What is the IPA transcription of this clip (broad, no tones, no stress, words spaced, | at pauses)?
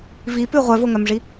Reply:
vipʉ ʁʷœvoŋœmʐi